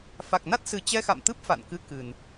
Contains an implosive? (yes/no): no